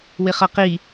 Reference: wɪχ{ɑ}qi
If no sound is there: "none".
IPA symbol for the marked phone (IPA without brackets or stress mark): ʌ